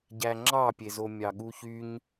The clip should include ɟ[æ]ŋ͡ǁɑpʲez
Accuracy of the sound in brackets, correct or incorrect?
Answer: correct